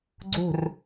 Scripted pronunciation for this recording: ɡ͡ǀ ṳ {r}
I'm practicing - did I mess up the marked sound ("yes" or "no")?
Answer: no